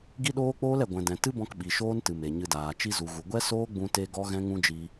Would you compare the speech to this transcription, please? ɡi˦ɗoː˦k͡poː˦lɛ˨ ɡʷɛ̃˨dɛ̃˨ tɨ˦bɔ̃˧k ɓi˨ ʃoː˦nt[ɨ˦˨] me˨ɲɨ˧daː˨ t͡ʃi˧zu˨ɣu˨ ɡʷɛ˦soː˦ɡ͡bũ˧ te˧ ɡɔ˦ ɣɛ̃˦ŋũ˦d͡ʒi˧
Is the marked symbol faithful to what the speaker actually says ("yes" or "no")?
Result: no